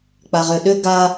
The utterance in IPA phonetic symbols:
k͡p a ʁ ʏ ɗ ʏ ɡ a

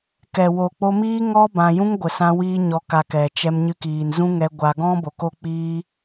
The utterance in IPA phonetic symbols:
k ɛ˨ w o˨ k͡p o˧ m iː˦ ŋ ɔ˦ b ã˧ j ũ˦ ŋ ɡʷ ə˨ s ã˧ w iː˦ ɲ ɔ˧ k a˧ k ɛ˨ t͡ʃ ɛ˧ m ɲ ɨ˧ k iː˨ n z ũ˦ ŋ ɛ˧ ɡʷ a˧ ɡ ɔ̃˦ b o˨ k o˦ k͡p iː˦

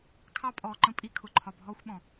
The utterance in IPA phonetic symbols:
kʰ ɑ˦ pʼ ɔː˨ ǃ ə̃˦ pʼ i˦ kʰ ʊ˨ ǃʰ ɒ˨ bʱ ɔː˦ xʷ ɓ ɔ̃˨

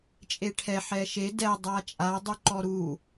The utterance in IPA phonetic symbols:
t͡ʃʼ e ʈʰ ɛ ħ ɛ ʃ e d ɛ dˤ a t͡ʃʼ a dˤ y ǃ ɔ ɾ u

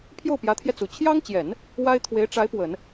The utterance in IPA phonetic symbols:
pʰ j o˥˩ ʊ̯ p j ä˧˥ t̪ʰ j ɛ˧ t͡s u˨˩ t͡ɕʰ j ɑ˥ ŋ t͡ɕ j ɛ˨˩˦ n | w a˥ ɪ̯ t̪ʰ w e˧˥ ɪ̯ ʈ͡ʂ a˧˥ ɪ̯ p w ə˨˩˦ n

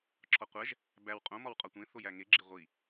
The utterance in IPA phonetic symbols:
ǁʰ ɒ qʷ æ ʒ | b æ w qʼ õ m ɒ w qʼ ɒ tʷ ẽ θ o j æ ŋ e ɡ͡ǁ e ʁʷ i

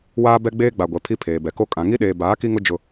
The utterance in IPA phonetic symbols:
w aː˦ b ɛ˦ ɡ͡b eː˦ ɡ͡b a˨ ɡʷ ɛ˨ pʰ i˦ pʰ eː˨ b ɛ˨ k o˦ kʼ ã˨ ŋ i˦ ɗ eː˨ b aː˨˦ k i˦ ŋ ʊ˦ d͡ʒ ʊ˦

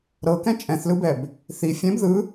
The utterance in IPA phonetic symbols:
ɾ ɤ k ɛ̃ t͡ʃʼ ɛ̃ θ l ɯ b ɛ b | θ i fʲ ɛ̃ b ð ɯ

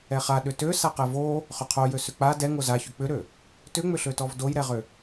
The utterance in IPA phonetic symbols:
ɛ χ a ɗ ʏ t ø s a q ɛ v o | χ ʏ qʰ o j ø s ʏ k͡p a d ɛ ŋ o z a ç ʏ k͡p ʏ ɾ ø | t ʏ ŋ͡m ʏ ɬ ø t ɔ v d o j ɾ ɛ ʁ ʏ

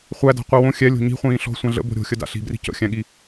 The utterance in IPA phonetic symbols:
χʷ æ d a̤ qʷ i w õ xʲ ɛ lʲ o̤ ɲ i̤ χʷ ĩː ɬ ɔ̤ sʷ ã ɮ ə̰ b o̤ ɾʲ o̤ xʲ ə d a̰ ɬ i̤ b r i̤ c ə̰ xʲ æ̃ ɠ i

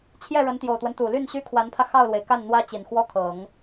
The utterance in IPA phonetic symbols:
t͡ɕʰ j ɛ˥˩ ɻ ə˧˥ n t̪ j o˨˩ ʊ̯ t̪ w ə˦ n t̪ u˨˩ l y˥˩ n ɕ y˥ kʰ w a˧˥ n pʰ ä˧ x ɑ˥˩ ʊ̯ l w e˩ ɪ̯ k a˥˩ n n̪ w ä˥ t͡ɕ i˨˩ n x w ɔ˥ kʰ ɤ˨˩˦ ŋ

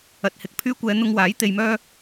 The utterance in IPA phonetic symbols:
ɐ˨ t̚ h ɪ˨ k̚ pʰ yː˥ kʷ ɛː˧ n̪ ʊ˧ ŋ w aː˨˥ j t̪ e˧ j m œː˥

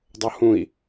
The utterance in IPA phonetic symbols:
dˤ o h ũ i̯

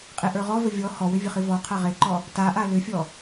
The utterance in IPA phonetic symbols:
qʼ e ʔ ə˞ ʁ ɔ v ə vʲ ɔ h ɔ w ʏ vʲ ə χ i v ɔ qʰ a ʁ e ǃ ɔ | t a ʔ a l ʏ fʲ ɔ

